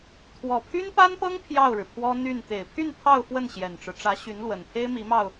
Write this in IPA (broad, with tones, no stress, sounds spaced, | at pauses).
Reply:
t̪ʰ w ɔ˨˩ pʰ y˥ n p a˥ n p ɤ˥ ŋ pʰ j ɑ˥˩ ʊ̯ ɻ ɻ̩˩ pʰ w ɔ˥ n̪ y˥˩ n t̪ e˨˩ ɪ̯ pʰ y˥˧ n pʰ ɑ˥˧ ʊ̯ f w ə˥˩ n ɕ j ɛ˨˩ n ʈ͡ʂ ɻ̩˦ ʈ͡ʂ ä˧˥ ɕ y˧˥ n l w ə˨˩ n pʰ e˥ ɪ̯ m i˧˥ m ɑ˧ ʊ̯